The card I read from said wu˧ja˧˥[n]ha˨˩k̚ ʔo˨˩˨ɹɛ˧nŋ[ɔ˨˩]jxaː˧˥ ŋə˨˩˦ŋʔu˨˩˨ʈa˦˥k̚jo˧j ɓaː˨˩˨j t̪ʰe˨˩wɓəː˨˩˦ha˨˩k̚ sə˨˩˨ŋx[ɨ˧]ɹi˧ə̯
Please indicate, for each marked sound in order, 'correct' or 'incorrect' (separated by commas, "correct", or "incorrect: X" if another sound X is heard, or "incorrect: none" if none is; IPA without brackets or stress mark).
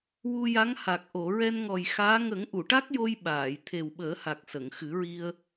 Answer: incorrect: ŋ, correct, incorrect: ɨ˨˩˦